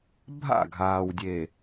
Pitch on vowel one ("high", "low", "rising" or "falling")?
falling